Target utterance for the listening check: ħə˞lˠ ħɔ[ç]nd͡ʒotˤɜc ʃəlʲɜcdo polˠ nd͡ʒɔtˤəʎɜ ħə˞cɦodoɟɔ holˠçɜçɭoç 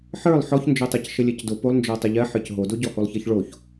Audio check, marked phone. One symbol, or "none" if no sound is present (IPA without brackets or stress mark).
ç